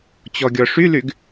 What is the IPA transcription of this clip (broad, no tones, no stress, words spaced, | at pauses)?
t͡ɕɔɡʲɔʂylyɡ